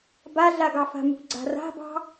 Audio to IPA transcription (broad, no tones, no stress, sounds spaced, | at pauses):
b a ɮ a ɡ ɑ f a̤ m ṳ ɡ͡ǀ a̤ r a̤ b ɑ̤